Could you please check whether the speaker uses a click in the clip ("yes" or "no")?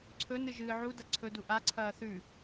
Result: yes